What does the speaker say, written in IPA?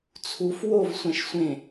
t͡sʰ u f w o v sʷ æ̃ ʃ sʷ ẽ

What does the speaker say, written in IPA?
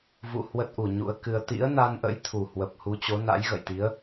v ṵ˧˨ h w ə˦˥ t̚ ʔ u˨˩ ɲ ṵ˧˥ ə̯ k ɨ˧ ə̯ t̪ ḭ˧˥ ə̯ n a˧ n ʔ ə̰˧˥ j t̪ʰ u˨˩ h w ə˨˩ p̚ h u˨˦ t͡ɕ o˨˦ n a̰˧˥ j ɣ ə̰˧˨ j t̪ i˨˦ ə̯

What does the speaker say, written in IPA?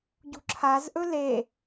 ɟ ṳ ǁʰ a z ʔ ɵ l e

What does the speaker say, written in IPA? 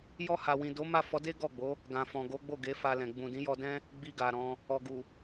j ɔ˧ h a˨ w ĩ˨ d o˨˦ m a˦˨ f ɔ˨˦ d e˦ ɡ ɔ˦˨ ɡ͡b o˨˦ | ɡ ã˨ f ɔ̃˨ ɡ o˨˦ ɡ͡b o˦˨ ɡ e˨˦ f a˧ l ɛ̃˨ ɡ͡b ũ˨ d ĩ˨˦ j ɔ˧ d ɛ̃˦ | ɡ͡b i˧ ɡ a˨ ɾ ɔ̃˧ | ɔ˨ ɡ u˨

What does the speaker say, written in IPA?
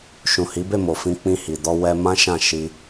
ʃ ũ˨ h i˨˦ b e˦˨ m o˨ f ĩ˧ k͡p ĩ˧ h i˨ d ɔ˧ w ɛ˧ m ã˦ ʃ ã˦˨ ʃ i˧

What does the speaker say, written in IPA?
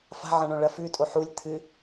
f a̤ ʕ ɐ̃ ɳ õ ɭ ɐ f ʉ tʼ o ħ u lʲ t̪ʰ ɨ

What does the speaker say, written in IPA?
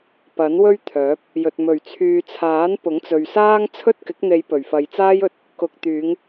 p ɐ˨˥ n w ɵ˥ ɥ t̪ʰ œː˨˥ p̚ | j ɵ˨ t̚ m ɵ˨˩ ɥ t͡sʰ yː˨ t͡sʰ aː˨˥ n p ʊ˨˥ ŋ t͡s ɵ˨ ɥ s aː˥ ŋ t͡sʰ ɵ˥ t̚ k ɪ˨˥ k̚ n̪ e˨˧ j p ɵ˨˩ ɥ f ɐ˨˧ j t͡s aː˥ j ɵ˨˥ t̚ | k ʊ˨ k̚ t̪ yː˨˧ ŋ

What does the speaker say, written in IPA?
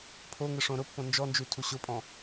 pʰ o ŋ ɪ ʂ õ ɾ ʊ pː õ n d͡ʒ ɔ n d͡ʒ ʉ tʰ u ɕ ʊ pʼ ɔ̃

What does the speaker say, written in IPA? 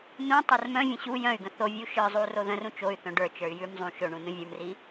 n ũ tˤ ə˞ r m œ̃ vʲ ə̃ ɕ u j œ̃ y̯ ɡ ə̃ θ o vʲ u ʃ ə˞ zˤ u r o ð ə̃ r ũ t͡ʃ o y̯ θ œ̃ ɖ ə˞ t͡ʃ ə˞ y̯ j ʉ m zˤ ũ ʃ ɵ ɳ ũ n ũ vʲ ə˞ m r i

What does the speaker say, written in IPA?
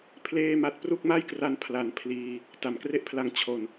pʰ l eː˥˩ m a˥˩ t̚ p r u˥˩ k̚ m a˥˩ j k r a˧ n pʰ l a˩˦ n pʰ l iː˧ | t a˩˦ m k r e˥˩ ʔ pʰ l a˦˥ ŋ t͡ɕʰ o˨˩ n

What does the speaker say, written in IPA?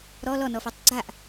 ɾ ɔ l ɔ n ɔ f ɔ tˤ ɡ͡ǀ a ʔ

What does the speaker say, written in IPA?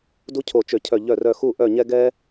d u˥ cʰ o˧˩ t͡ʃ ø˧˩ cʰ œ˧˩ ʎ œ˧˩ r œ˧˩ x u˥˧ ʔ œ˧˩ ɲ ɛ˧ ɡ ɛ˧

